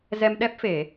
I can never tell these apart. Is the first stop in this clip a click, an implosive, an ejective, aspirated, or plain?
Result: implosive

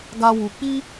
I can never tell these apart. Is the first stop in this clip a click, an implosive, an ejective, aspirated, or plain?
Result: plain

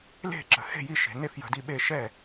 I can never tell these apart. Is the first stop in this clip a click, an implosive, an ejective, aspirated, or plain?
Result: click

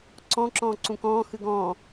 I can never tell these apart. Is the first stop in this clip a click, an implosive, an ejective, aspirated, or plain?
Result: click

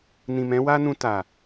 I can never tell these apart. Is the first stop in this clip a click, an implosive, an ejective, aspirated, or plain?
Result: plain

